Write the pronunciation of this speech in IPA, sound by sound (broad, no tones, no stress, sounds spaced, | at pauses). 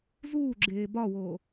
z uː ɡ͡ǁ eː b ɒ w oː